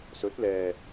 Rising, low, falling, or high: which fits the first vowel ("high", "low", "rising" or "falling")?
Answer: rising